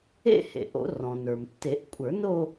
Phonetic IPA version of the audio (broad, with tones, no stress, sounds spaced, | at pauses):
ḛ˥˧ h ḛ˩ ʔ o̰˨˩˦ r ɔ̃˩ n ə˞˩ m tː e˨˩˦ ʔ kʷʼ ə˞˨˩˦ n o˥˧